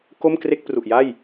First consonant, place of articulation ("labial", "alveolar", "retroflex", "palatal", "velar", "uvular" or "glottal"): velar